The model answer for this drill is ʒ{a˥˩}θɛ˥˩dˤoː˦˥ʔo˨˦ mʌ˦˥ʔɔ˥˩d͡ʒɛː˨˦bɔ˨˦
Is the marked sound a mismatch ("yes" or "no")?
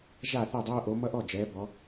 no